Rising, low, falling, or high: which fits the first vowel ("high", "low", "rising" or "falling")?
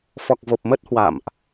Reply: low